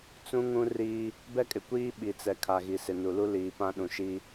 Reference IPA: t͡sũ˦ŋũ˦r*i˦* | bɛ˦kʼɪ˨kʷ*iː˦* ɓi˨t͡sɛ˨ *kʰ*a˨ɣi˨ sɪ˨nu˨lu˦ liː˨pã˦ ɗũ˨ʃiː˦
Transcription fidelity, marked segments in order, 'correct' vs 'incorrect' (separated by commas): incorrect, correct, correct